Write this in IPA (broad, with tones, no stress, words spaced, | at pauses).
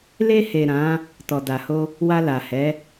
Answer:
le˧he˨ ɾã˨˦ | tɔ˨da˨ho˧ | wa˧la˨hɛ˨˦